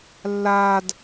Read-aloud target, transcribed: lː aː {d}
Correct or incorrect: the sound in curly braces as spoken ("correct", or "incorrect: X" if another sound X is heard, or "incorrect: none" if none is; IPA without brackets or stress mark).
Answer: correct